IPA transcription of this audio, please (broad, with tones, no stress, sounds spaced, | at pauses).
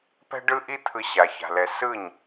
p ɛ̤˦ ɖ ɯ˦ ʔ i˦ t̪ʰ ɯ˧ ɕ a˨ ç a̤˨ l ɛ˨ s ɯ˦˨ ɲ